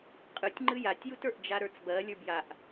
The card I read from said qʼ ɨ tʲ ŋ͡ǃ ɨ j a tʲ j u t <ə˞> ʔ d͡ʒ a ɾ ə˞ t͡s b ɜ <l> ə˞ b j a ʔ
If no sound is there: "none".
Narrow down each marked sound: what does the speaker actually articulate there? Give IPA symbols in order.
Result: ə˞, lʲ

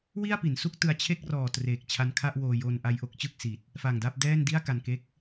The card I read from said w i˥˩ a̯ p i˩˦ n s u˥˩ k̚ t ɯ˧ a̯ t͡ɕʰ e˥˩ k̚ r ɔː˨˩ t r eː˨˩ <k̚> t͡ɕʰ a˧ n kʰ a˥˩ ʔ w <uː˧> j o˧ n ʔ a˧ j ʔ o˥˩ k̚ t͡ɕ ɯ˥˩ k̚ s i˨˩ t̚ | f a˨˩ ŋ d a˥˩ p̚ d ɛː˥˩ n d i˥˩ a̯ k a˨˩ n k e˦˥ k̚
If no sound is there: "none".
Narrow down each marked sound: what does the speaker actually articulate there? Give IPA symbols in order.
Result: k̚, oː˧

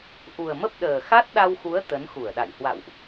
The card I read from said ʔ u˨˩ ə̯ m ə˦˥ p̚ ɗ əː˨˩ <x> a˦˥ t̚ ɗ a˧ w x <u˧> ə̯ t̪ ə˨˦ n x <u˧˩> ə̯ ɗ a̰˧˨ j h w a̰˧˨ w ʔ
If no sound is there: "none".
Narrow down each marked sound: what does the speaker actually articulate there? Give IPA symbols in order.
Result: x, u˨˦, u˧˩

